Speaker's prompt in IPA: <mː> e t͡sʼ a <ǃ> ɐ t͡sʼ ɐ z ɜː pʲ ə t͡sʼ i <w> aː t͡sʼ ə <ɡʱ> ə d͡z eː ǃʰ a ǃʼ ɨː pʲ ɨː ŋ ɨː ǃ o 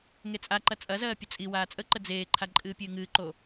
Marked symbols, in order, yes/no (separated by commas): no, yes, yes, no